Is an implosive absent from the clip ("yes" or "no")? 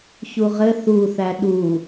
no